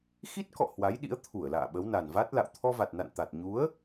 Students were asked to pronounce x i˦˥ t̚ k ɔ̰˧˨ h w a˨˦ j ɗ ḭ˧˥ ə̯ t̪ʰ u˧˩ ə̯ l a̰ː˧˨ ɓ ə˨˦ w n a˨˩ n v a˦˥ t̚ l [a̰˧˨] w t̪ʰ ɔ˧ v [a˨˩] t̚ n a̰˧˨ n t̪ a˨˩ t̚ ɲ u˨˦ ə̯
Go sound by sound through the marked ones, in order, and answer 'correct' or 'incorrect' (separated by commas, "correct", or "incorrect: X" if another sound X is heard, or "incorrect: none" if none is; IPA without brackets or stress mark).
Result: correct, correct